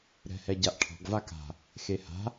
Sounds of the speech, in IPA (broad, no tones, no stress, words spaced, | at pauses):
ɾɛ̤hɛɟaʔʈʰɔ̤ɡ vaka̤ | xeha̤